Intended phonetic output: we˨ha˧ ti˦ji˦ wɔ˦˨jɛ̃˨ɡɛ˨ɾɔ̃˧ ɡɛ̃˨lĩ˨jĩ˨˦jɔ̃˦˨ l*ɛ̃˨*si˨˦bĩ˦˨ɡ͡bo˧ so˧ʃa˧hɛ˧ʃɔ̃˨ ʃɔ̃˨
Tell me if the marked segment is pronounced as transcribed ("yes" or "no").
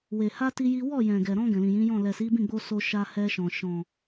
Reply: no